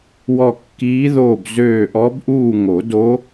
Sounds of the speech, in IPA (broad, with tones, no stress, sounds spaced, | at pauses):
w ɔ˦˨ kː iː˧˥ ð oː˦˨ b z øː˦˨ ʔ ɔ˧˥ b ʔ uː˦˨ ŋ o˨˩˦ d o˧˥